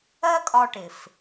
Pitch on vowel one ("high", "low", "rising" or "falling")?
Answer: high